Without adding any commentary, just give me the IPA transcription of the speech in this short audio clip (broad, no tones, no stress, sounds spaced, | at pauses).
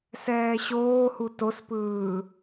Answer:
s ɛː ɕ oː h u t o s p ɯː